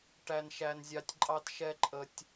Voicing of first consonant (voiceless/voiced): voiceless